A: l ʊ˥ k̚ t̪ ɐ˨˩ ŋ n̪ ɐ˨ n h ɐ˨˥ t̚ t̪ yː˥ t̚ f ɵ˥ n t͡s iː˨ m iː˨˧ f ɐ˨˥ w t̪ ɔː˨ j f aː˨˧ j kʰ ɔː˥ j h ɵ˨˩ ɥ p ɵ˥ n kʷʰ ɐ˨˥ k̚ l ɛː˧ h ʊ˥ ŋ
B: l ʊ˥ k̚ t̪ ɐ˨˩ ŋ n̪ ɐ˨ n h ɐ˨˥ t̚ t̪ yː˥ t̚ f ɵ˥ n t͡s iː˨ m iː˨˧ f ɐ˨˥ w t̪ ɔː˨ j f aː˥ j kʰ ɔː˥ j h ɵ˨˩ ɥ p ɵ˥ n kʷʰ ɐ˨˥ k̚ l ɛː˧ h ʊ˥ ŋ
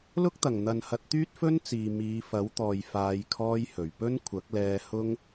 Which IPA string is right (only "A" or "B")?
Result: A